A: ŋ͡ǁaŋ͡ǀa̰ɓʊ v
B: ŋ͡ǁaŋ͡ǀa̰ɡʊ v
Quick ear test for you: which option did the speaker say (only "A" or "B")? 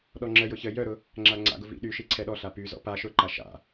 B